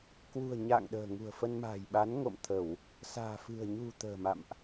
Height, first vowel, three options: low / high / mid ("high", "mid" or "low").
high